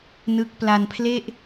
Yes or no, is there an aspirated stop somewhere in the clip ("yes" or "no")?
yes